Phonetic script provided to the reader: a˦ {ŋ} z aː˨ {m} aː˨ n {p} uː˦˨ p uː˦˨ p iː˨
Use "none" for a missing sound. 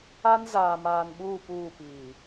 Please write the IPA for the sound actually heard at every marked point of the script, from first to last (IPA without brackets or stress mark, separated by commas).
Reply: n, m, ɓ